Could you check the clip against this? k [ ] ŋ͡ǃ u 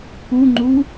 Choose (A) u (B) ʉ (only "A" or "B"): A